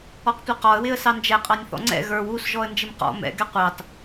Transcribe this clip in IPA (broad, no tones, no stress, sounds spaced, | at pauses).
ɔ q tʷ ɛ q ɔ ə̯ w ɪ ə̯ s ɑ n d͡ʒ ɛ qʼ ɑ nʲ θ ɔ̰ ŋ͡ǀ ɛ̰ ɣ ə˞ w u s ʒ ɔ ə̯ n d͡ʒ ɪ m q ɔ̰ m ɛ̰ ɡ ɛ qʷ ɑ t